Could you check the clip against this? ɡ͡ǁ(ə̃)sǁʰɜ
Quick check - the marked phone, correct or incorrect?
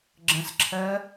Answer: correct